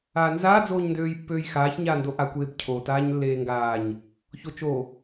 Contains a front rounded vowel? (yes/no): yes